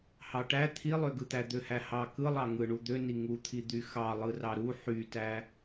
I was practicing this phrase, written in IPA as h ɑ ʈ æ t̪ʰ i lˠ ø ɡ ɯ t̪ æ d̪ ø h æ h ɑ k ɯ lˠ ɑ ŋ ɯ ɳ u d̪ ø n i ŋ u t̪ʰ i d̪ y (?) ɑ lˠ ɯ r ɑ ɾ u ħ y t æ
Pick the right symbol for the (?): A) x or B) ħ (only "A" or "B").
A